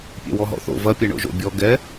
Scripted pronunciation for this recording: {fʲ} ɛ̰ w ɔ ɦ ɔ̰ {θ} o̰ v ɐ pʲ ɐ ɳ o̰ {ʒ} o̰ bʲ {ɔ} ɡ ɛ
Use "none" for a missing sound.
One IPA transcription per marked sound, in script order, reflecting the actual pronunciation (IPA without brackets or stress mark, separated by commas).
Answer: pʲ, θ, ʒ, ɔ